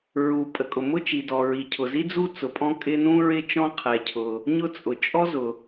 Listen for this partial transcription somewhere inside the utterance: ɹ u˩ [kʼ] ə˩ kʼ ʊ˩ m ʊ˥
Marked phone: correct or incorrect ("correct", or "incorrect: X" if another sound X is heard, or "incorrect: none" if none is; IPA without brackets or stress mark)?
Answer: incorrect: pʼ